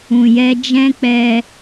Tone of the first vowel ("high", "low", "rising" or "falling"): low